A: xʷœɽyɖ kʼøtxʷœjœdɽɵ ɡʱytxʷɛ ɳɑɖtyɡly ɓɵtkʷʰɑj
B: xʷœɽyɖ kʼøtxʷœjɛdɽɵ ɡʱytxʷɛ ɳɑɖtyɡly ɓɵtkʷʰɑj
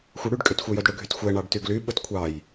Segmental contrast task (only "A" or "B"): A